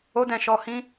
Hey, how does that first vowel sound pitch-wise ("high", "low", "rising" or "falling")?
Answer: high